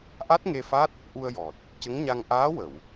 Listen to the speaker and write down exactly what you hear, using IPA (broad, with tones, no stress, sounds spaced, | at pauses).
ʔ a˦˥ t̚ ŋ e˧ f a˦˥ t̚ | ʔ u˧ ə̯ j ɔ˨˩ t̚ | c ə˧˥ ŋ ɲ a˧ ŋ ʔ aː˧˥ w ə˨˩˨ w